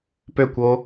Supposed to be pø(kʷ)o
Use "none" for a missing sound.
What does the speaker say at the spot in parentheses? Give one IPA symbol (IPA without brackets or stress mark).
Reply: kʷ